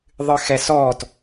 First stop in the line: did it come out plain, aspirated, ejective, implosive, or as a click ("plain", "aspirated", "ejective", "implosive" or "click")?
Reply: plain